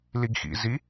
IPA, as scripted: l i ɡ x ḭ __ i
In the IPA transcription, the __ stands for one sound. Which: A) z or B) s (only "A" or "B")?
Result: A